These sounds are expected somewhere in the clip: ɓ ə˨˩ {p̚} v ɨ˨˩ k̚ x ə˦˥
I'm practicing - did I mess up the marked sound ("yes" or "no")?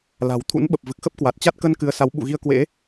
no